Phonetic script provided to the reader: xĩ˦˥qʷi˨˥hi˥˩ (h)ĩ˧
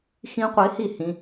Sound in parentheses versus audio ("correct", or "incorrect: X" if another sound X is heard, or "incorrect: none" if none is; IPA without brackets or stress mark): correct